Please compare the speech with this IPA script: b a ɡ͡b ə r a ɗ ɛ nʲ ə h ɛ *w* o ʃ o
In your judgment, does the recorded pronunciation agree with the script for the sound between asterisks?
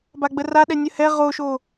no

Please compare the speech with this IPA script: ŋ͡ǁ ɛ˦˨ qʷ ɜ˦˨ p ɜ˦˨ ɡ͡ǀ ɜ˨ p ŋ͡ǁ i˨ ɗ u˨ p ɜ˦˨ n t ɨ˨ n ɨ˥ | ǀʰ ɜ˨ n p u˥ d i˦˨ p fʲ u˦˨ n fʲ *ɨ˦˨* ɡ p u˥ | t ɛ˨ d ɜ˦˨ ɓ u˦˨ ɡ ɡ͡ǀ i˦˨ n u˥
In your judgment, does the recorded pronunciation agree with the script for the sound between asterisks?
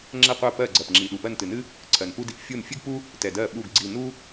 no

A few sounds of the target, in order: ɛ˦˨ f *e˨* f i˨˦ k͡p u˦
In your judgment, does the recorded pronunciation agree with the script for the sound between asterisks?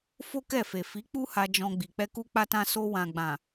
yes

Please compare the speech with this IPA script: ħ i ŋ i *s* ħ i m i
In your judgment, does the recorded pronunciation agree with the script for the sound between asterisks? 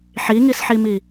yes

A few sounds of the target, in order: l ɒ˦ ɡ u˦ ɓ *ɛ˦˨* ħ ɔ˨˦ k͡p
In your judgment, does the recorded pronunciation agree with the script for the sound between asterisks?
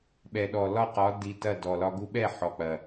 yes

